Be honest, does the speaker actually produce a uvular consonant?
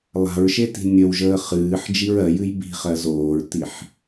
yes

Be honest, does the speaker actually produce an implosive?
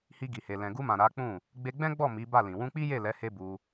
no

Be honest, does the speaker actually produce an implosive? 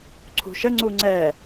no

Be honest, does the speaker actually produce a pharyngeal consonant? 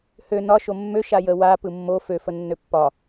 no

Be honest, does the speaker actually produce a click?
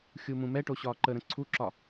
yes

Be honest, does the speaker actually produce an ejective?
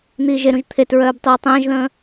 no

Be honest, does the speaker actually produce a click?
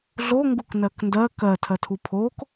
no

